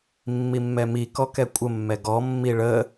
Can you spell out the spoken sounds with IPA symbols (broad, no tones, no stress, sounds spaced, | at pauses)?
mː i mː ɛ m i k ɔ k ɛ kʷʼ ə mː ɛ ɡ ɔ mː i ɭ ə